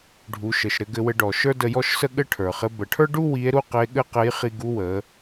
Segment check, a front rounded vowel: absent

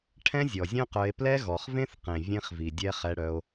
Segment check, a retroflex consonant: present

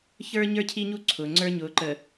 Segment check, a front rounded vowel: absent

